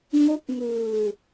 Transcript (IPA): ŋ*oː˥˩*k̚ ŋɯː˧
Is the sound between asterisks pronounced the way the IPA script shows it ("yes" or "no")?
no